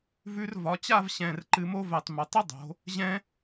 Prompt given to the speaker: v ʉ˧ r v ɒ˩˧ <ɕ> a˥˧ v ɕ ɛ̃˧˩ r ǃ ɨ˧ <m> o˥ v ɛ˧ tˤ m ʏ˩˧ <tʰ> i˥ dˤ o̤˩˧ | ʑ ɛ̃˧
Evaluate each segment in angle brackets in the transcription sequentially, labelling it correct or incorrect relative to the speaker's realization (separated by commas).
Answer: incorrect, correct, incorrect